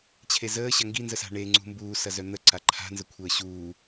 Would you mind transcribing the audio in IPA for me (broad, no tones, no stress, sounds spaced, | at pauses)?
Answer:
t͡ɕʰ e z əː ɕ ɐ ŋ ɡ i n z ə s a̤ ɳ e ŋ͡ǀ ṳ m b uː s ɐ z œ n̪ ə ǀ a ǃʰ a̤ n z ə kʷʰ əː ɕ uː